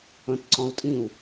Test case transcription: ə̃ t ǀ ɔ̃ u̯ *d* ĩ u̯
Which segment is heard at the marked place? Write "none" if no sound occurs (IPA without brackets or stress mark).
tʼ